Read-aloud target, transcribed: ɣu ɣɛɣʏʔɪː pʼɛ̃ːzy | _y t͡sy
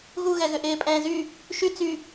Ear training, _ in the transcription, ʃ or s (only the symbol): ʃ